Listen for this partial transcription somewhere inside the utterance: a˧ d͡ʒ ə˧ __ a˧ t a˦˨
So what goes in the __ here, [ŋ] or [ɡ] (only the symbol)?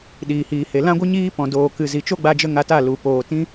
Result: ŋ